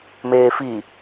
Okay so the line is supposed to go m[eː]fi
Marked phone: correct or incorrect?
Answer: correct